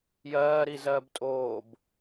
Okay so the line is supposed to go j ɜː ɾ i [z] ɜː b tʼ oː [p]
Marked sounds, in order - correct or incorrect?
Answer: correct, incorrect: b

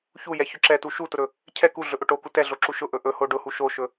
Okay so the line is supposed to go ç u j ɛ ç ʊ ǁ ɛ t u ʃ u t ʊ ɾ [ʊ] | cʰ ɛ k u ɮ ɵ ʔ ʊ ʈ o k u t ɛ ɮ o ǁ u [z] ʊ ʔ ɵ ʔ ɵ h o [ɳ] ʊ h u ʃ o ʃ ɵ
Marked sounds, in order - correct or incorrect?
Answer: incorrect: ɵ, incorrect: ʃ, incorrect: ɖ

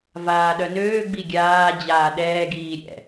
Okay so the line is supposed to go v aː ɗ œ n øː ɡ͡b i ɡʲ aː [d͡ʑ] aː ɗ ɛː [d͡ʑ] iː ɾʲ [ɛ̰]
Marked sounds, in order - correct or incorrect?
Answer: correct, incorrect: ɡ, correct

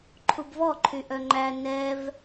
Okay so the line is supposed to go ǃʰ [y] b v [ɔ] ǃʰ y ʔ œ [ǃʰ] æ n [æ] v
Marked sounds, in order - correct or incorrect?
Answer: incorrect: u, correct, incorrect: ŋ͡ǃ, incorrect: ɛ

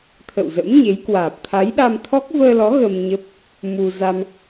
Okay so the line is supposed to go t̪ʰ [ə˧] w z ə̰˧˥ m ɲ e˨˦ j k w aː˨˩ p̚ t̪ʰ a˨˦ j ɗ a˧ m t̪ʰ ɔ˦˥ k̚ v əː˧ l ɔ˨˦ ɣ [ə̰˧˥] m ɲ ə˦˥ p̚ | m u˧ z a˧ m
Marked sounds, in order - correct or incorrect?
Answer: incorrect: ə̰˧˨, incorrect: ə˧

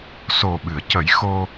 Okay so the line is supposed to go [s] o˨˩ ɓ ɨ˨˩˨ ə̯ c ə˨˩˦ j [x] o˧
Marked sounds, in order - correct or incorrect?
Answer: correct, correct

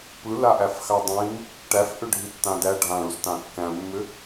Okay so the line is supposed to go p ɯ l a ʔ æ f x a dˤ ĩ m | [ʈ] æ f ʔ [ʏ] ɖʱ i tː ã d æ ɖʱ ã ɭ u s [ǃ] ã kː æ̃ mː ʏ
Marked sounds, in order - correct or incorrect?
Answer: correct, correct, incorrect: t

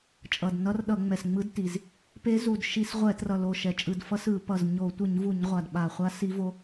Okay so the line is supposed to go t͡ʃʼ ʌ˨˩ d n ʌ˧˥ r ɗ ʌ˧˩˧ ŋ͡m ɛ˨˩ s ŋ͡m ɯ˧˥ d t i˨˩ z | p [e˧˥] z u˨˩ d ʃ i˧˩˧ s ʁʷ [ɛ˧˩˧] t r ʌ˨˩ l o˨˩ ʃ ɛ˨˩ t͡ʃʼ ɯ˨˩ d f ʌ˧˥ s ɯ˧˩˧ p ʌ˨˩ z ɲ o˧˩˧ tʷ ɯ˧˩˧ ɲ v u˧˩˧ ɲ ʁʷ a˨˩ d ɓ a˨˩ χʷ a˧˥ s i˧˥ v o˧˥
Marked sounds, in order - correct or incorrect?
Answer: correct, correct

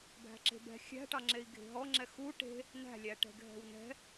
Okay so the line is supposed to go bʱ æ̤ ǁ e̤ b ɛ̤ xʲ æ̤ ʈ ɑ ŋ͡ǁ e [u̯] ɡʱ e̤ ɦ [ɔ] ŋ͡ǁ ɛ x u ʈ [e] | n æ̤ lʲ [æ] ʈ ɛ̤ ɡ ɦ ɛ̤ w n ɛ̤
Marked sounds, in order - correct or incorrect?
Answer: incorrect: i̯, correct, incorrect: e̤, correct

